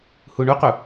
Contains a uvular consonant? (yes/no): yes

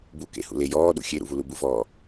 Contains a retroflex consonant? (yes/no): no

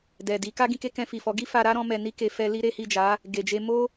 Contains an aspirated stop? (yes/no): no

